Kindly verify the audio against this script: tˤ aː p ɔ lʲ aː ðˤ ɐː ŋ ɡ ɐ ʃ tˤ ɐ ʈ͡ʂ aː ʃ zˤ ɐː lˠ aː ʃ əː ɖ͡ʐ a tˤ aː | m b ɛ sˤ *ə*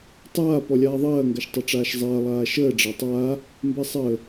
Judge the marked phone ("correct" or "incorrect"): incorrect